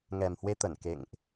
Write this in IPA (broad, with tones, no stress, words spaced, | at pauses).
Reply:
ŋɛ˨˩mhwe˧t̪ə˧˩n kḛ˧˨ŋʔ